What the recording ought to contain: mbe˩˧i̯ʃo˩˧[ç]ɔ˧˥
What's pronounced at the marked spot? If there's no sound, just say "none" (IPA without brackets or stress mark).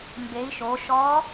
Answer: ʃ